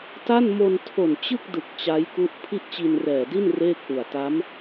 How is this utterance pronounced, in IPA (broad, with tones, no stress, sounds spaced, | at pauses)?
t a˥˩ n m o˧ n tʰ o˨˩ n t͡ɕ ɯ˥˩ k̚ d ɯ˨˩ k̚ t͡ɕ a˦˥ j k u˦˥ ʔ pʰ i˥˩ ʔ t͡ɕ i˧ n r ɛː˨˩ d i˥˩ n r eː˥˩ k̚ ʔ u˨˩ a̯ t a˦˥ m